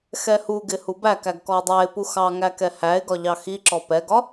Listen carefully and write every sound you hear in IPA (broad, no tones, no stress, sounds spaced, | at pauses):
x ɛ h u ɡ ɪ h u b æ k æ ɡ k ɔ ə̯ dˤ æ ɪ̯ p u x ɑ ŋ æ k ɛ h æ ɪ̯ ɡ ɒ ʎ ɑ x i ǁ ɔ p ɛ ɡ ɒ